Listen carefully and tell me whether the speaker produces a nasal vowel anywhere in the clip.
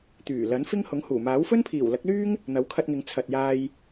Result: no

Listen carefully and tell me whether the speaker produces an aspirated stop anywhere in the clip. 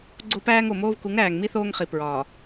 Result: no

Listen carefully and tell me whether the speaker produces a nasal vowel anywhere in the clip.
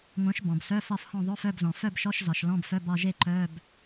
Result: yes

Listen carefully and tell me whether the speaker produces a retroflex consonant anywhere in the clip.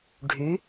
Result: yes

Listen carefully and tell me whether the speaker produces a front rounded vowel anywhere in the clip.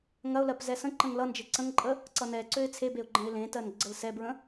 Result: yes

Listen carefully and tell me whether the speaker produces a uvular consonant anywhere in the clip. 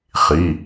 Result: yes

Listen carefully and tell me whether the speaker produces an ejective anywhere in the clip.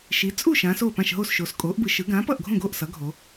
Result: yes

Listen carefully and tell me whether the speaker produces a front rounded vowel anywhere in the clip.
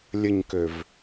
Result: yes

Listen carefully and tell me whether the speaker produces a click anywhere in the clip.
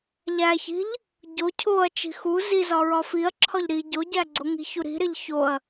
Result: yes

